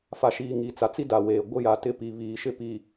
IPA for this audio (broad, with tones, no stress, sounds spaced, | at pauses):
f a˨ ʃ iː˨ ŋ i˨ t͡s a˨ t͡s i˦ d a˨ w eː˨ ɡʷ ɪ˦ j a˨ t ɪ˦ p i˨ β iː˨ ʃ ɪ˦ p i˨